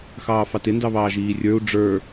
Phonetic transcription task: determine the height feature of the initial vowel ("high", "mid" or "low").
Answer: low